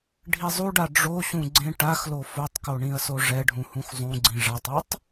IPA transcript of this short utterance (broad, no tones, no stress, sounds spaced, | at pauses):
ɖʱ i zˤ u ɖ a ɖ͡ʐ o ɕ ũ ɡ͡ǀ ẽ ʈ a x l o f o tˤ k o ɳ ĩ ɐ̯ s o ʐ ɛ ɖʱ ũ h ũ x zˤ ũ ɡ͡ǀ ĩ ʐ a tˤ u tˤ